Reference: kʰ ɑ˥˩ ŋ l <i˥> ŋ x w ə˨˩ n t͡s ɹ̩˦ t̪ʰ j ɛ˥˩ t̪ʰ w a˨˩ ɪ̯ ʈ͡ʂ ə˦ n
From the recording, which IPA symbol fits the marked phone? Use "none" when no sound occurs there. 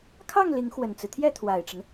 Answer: i˧˥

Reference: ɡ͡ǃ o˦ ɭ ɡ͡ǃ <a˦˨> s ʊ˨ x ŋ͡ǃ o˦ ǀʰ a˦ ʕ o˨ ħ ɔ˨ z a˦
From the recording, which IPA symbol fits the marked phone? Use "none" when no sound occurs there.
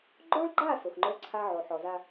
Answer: a˦˨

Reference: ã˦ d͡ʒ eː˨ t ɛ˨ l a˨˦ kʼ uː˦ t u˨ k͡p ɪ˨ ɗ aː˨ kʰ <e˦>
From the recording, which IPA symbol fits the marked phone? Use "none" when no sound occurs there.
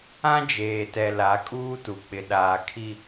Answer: i˦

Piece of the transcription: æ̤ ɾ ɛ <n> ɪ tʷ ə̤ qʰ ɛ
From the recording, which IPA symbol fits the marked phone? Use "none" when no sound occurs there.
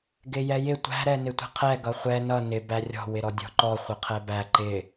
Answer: n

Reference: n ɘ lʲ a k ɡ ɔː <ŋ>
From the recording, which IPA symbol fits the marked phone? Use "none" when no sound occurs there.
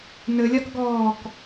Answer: k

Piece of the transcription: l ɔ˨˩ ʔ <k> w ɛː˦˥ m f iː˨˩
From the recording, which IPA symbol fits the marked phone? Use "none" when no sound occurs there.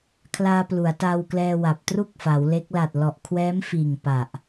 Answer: kʰ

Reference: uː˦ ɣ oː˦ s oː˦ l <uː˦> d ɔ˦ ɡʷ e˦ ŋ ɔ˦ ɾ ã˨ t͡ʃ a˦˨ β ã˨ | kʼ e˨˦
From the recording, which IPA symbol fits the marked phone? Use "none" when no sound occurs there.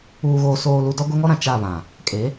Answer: u˦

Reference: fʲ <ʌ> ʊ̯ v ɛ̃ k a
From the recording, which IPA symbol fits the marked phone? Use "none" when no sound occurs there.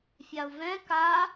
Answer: a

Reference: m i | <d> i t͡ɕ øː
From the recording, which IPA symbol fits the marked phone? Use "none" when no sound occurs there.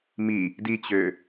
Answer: d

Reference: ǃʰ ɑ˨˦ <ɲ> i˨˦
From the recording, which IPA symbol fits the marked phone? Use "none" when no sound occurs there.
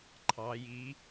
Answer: j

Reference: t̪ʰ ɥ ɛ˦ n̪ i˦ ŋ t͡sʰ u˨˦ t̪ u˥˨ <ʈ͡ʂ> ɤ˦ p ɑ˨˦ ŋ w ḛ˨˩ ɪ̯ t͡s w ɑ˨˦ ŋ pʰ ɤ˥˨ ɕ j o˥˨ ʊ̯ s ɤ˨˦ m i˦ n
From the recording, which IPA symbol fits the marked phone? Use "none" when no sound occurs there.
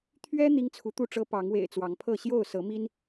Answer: ʈ͡ʂ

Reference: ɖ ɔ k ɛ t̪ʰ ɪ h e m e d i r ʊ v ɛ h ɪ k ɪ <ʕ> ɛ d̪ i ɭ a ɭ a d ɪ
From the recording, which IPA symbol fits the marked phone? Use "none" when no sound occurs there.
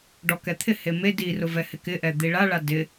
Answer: ʔ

